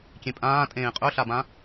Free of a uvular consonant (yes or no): no